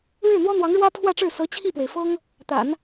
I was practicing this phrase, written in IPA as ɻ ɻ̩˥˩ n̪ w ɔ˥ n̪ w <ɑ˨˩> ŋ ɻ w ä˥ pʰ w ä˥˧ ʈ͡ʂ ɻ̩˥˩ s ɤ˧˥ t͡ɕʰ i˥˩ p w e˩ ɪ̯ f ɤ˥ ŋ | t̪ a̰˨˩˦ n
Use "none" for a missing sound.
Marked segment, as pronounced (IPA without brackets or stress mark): ɑ˧˥